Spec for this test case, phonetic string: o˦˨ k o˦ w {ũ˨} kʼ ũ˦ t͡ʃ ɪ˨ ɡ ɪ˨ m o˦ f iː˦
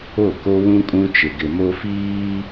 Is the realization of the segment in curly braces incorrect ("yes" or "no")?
yes